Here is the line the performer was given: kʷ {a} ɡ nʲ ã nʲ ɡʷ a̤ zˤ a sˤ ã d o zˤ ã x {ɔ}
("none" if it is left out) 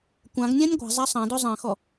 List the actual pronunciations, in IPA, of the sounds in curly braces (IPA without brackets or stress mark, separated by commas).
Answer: ã, ɔ